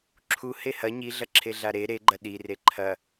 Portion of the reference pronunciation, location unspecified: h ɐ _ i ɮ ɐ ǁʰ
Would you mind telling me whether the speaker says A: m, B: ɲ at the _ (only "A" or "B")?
B